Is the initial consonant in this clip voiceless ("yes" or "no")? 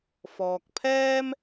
yes